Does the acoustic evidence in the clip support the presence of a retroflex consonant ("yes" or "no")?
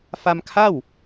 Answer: no